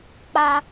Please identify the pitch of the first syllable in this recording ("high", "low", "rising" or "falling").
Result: high